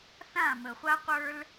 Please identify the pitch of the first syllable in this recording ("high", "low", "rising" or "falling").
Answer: falling